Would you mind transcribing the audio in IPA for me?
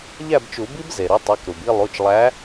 ʎæ˥˨bt͡ʃu˨˩˦bi˦˥b ze˩ɾu˨˦tˤe˩˧˩k ɾu˩bi˥˨lˠu˩˧˩t͡ʃlˠæ˨˦

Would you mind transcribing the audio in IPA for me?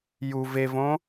ju vevõ

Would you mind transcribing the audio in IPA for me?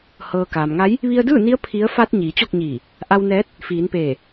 hɤː˩ kaː˩mŋa˧˥j | ʋi˧ə̯dɯː˥˨ni˧˥ə̯ pʰi˧˥ə̯ fa˧t̚ ɲiː˩˧t͡ɕo˥˨k̚ɲiː˧˩ | ʔa˧wnɛː˧˥t̚ | fiː˩˧npeː˧˩

